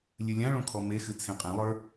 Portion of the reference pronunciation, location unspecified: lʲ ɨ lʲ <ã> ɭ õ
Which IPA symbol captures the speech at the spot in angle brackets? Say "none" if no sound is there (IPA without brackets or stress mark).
ã